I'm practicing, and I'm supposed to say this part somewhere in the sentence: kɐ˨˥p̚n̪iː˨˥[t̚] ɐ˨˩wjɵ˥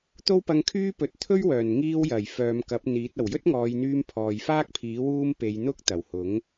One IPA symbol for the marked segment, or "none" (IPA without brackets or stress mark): t̚